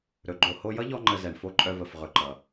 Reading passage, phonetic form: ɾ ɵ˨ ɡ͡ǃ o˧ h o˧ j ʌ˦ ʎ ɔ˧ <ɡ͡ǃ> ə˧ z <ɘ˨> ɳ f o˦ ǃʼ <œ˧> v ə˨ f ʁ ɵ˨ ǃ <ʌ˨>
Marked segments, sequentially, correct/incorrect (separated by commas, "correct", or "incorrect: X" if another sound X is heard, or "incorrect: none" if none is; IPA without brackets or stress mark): incorrect: ŋ͡ǃ, incorrect: ɛ˨, correct, correct